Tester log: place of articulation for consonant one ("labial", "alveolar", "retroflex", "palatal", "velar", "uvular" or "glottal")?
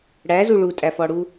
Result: retroflex